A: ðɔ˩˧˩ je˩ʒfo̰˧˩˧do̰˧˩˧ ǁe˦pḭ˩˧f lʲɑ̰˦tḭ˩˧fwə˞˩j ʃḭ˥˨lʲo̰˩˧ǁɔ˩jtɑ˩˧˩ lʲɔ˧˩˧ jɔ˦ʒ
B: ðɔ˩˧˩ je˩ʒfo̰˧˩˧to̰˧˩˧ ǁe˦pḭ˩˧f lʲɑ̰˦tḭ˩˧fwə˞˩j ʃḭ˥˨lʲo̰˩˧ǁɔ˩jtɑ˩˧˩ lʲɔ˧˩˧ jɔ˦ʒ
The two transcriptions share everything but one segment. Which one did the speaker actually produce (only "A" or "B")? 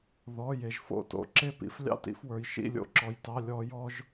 B